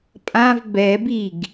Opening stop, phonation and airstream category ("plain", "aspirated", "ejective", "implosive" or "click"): ejective